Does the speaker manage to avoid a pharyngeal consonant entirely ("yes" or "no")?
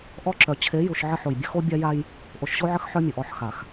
no